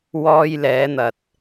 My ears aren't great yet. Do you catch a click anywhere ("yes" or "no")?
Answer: no